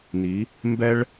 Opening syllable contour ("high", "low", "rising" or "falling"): rising